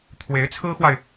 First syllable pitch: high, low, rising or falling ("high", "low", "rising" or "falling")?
rising